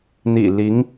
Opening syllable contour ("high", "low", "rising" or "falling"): low